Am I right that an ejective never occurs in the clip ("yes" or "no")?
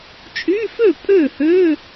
no